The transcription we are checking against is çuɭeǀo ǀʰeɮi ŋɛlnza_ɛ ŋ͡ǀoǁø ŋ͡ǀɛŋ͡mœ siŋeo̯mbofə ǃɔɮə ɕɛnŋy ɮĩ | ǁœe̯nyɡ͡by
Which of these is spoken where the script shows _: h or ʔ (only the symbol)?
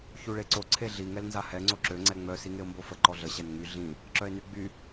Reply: h